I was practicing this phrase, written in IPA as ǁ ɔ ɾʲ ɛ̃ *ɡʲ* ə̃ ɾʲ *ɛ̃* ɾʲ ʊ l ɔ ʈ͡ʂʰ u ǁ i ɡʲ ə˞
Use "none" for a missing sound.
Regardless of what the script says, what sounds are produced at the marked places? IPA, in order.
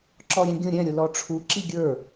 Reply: ɡʲ, ɛ̃

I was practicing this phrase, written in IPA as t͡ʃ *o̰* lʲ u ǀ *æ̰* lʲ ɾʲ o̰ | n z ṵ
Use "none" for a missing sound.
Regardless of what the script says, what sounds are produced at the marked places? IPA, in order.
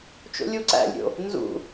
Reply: o̰, æ̰

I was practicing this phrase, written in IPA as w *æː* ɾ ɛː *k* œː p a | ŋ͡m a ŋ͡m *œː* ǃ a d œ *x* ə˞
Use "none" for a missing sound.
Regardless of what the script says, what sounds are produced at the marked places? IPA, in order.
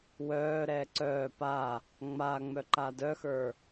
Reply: œː, ǀ, œ, x

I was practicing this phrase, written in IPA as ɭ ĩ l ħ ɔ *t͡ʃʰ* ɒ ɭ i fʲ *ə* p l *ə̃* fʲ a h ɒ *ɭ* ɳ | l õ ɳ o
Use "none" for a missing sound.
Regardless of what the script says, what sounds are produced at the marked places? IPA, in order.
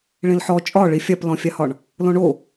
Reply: t͡ʃʼ, a, ɔ̃, none

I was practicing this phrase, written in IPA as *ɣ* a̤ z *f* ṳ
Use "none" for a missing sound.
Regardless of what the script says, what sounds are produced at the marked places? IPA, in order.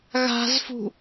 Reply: ɣ, f

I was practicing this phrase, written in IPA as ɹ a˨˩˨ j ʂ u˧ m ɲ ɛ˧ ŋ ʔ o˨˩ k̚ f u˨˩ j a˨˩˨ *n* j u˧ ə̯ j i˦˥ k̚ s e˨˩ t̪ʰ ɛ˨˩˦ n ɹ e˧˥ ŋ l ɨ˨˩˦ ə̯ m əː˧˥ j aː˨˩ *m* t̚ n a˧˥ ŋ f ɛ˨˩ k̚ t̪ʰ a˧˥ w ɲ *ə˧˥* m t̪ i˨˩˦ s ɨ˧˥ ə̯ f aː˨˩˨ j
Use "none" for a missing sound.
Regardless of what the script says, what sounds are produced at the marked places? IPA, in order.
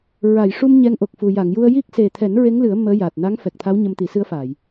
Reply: ŋ, none, ə˧

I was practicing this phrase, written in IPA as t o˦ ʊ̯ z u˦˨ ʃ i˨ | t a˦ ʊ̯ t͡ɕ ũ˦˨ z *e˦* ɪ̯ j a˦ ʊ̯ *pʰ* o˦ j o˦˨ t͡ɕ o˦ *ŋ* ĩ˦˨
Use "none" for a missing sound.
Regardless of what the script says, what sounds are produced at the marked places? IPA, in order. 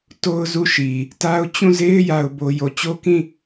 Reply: e˦, b, k

